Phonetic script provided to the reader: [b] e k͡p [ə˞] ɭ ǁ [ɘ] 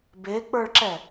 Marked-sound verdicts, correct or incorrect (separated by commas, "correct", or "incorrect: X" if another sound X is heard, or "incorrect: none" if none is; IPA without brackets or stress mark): correct, correct, incorrect: ɛ